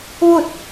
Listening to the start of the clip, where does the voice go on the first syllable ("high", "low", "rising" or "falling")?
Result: falling